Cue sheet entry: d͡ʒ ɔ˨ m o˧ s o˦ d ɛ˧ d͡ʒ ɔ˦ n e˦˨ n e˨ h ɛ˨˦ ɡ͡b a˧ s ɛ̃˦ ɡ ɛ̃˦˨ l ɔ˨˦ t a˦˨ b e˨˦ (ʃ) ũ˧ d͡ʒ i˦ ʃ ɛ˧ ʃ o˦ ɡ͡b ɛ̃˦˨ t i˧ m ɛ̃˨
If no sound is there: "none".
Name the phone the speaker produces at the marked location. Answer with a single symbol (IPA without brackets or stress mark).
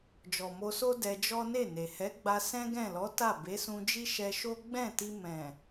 s